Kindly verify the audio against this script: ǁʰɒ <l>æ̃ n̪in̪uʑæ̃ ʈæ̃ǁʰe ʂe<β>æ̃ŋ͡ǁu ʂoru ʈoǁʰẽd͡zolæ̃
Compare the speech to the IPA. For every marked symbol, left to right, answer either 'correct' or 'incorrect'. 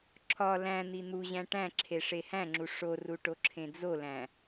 correct, incorrect

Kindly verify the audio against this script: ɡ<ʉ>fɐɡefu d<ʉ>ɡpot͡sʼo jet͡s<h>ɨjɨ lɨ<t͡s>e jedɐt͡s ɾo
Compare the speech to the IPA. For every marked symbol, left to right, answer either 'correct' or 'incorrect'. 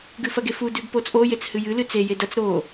correct, correct, correct, correct

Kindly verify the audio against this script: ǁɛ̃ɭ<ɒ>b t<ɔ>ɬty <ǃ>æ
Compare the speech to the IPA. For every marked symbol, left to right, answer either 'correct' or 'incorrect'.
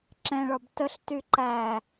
correct, incorrect, correct

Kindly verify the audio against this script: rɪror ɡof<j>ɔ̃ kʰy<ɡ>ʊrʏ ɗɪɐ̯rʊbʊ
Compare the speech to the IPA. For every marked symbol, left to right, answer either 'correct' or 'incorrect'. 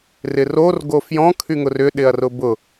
correct, incorrect

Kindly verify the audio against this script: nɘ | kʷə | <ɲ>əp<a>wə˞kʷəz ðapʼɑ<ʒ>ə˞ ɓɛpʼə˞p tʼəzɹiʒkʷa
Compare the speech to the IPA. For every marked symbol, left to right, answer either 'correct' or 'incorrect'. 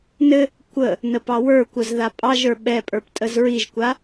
incorrect, incorrect, correct

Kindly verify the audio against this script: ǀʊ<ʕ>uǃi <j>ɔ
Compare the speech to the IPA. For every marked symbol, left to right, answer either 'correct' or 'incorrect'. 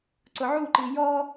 correct, correct

